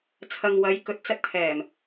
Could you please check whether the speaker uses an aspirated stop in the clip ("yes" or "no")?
yes